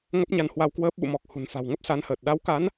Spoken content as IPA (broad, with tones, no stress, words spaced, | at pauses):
ŋə˦˥p̚ɲa˧n hwa˧wkwəː˦˥p̚ ɓṵ˧˨mɔ˨˩k̚ hṳ˨˩nfa̤˨˩wŋə˦˥p̚ sa˨˦nhəː˨˩t̚ ɗa˨˦wka˨˦n